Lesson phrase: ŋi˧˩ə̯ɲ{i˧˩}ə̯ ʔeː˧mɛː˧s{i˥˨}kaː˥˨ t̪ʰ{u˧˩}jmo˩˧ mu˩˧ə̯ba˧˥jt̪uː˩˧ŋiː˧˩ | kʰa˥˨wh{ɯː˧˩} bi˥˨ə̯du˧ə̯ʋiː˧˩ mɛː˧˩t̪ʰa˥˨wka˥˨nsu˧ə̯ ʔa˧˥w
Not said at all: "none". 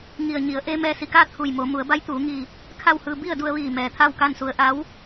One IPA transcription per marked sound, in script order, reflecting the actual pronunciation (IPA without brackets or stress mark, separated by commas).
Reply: i˩˧, i˧˩, u˧˩, ɯː˧